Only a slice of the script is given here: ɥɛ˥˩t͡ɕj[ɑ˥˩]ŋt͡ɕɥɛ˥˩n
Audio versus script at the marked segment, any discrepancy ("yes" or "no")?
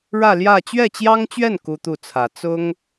yes